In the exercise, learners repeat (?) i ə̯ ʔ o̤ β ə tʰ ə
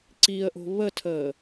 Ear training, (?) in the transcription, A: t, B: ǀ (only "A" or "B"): B